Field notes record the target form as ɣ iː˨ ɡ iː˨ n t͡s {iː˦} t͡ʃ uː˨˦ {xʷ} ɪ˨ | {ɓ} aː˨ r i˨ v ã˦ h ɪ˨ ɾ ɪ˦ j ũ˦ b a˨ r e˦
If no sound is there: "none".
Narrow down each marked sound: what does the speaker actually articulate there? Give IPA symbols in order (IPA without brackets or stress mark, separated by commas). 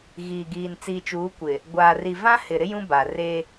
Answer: iː˨, kʷ, ɡʷ